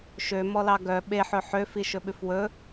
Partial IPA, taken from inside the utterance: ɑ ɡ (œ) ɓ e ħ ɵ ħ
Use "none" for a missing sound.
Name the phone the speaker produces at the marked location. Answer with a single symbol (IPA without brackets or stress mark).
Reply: œ